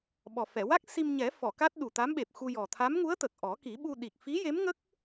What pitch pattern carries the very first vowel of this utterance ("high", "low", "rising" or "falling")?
low